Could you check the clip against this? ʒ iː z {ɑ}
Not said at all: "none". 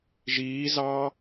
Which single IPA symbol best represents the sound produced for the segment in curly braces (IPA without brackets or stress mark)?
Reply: ɑ